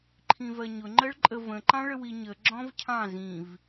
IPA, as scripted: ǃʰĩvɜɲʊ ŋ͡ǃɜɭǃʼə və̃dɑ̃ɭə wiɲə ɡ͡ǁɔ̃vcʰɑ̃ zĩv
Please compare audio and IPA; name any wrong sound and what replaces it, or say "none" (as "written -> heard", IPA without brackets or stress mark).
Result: d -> ǃ